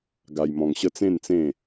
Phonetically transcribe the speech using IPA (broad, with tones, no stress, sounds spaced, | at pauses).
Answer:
ɡ a˧ j m ɔ̃˧ ŋ ɕ ə˦ t͡s ẽ˥˧ n t͡s ẽ˥˧